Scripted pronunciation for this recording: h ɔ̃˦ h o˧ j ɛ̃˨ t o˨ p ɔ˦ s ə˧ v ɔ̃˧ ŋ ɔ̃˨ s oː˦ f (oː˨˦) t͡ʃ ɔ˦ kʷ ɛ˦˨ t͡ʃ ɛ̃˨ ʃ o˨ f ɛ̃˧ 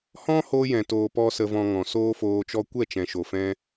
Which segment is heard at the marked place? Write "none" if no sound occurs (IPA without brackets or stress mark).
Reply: oː˧